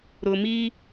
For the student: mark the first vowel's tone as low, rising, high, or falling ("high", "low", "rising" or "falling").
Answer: low